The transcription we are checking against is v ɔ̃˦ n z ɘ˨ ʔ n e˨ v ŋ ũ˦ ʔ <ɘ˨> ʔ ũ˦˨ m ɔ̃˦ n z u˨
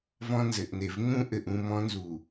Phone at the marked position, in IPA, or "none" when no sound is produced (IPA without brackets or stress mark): ɘ˨